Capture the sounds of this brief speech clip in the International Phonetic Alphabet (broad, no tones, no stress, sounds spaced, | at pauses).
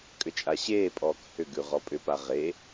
kʼ ʏ t͡ʃʼ a ɕ eː pʼ ɔː k h ʏ ɡ ʉ ʁ ɔ pʼ ʏ p a ʁ e